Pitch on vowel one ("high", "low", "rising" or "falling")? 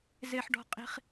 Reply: high